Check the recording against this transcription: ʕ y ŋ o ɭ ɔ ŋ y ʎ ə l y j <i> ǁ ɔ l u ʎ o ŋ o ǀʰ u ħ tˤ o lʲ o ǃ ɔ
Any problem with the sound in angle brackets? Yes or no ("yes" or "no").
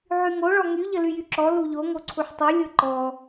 yes